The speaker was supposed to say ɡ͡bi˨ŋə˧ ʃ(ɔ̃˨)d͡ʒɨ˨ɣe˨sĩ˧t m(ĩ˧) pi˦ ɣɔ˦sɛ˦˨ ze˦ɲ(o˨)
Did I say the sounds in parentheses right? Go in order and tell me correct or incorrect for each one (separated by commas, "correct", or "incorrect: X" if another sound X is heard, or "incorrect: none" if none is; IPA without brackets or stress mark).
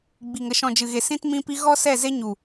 correct, correct, incorrect: u˨